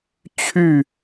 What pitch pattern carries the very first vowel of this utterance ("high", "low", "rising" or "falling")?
falling